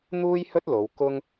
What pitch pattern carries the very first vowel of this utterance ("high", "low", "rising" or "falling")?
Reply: high